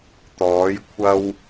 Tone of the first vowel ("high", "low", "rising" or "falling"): rising